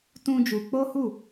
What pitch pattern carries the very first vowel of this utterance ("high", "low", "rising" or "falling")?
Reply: high